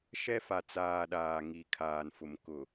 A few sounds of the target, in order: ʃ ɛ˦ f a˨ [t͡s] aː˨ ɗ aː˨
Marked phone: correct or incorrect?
correct